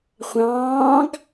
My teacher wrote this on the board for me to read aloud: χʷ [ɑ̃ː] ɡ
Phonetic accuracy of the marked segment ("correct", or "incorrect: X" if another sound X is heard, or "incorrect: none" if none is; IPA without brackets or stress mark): correct